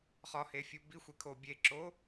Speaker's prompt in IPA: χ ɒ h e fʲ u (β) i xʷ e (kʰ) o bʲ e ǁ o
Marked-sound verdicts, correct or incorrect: incorrect: b, correct

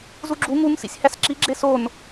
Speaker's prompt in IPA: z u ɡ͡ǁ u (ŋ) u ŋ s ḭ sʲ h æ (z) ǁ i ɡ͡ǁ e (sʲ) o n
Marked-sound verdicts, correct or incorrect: correct, incorrect: s, incorrect: s

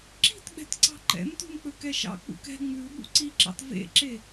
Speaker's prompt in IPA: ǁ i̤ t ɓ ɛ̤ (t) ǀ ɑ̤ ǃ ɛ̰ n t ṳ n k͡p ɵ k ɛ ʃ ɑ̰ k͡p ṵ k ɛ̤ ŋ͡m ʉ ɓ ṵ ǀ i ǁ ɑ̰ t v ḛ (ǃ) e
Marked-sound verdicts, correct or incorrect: correct, incorrect: ǁ

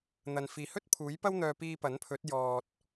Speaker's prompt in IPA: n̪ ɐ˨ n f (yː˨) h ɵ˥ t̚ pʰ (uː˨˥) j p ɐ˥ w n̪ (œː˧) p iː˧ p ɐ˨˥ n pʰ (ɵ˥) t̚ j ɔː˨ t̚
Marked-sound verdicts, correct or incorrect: incorrect: iː˨, correct, correct, incorrect: ɵ˨˥

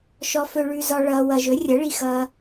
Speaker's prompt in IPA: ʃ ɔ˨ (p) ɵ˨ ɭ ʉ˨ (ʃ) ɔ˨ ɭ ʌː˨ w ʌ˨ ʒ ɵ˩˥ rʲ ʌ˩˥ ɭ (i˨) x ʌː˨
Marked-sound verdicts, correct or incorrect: incorrect: f, incorrect: z, correct

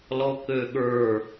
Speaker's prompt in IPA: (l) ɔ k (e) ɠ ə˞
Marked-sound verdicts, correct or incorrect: correct, incorrect: ø

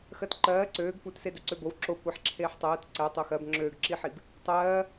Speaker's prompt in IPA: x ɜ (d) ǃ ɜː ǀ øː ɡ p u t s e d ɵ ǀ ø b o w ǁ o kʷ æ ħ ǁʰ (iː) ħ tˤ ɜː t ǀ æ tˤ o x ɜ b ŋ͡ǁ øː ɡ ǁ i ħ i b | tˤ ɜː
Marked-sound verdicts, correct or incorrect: incorrect: t, incorrect: eː

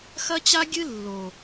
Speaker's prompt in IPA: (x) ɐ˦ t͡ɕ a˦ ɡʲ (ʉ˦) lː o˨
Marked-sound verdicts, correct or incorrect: correct, incorrect: ɨ˦

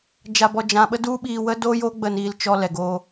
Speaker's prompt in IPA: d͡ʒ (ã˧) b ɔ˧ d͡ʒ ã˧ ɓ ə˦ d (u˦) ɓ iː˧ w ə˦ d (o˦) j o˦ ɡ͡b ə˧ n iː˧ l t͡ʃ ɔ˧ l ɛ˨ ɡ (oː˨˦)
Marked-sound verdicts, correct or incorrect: incorrect: a˧, correct, correct, incorrect: oː˧

